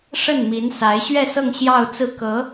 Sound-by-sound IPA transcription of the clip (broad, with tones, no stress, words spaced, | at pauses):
ʂə˥˩nmi˧˥n sa˧˥ɪ̯ɕɥɛ˥˧sɤ˥˧ŋ ɕjɑ˥˧ʊ̯t͡sɹ̩˥˩kɤ˧˥